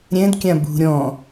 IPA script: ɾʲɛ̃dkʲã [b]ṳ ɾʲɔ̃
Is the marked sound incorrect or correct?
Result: correct